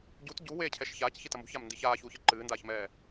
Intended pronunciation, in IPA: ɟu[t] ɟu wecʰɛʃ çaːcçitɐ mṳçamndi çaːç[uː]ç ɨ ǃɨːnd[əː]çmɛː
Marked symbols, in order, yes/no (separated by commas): yes, yes, no